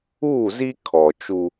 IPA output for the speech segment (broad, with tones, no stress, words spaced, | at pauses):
uː˦˨zi˦ kʰɔ˨t͡ʃu˦